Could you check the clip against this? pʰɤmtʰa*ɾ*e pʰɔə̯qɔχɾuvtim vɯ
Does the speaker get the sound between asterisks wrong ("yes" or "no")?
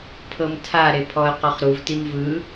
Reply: no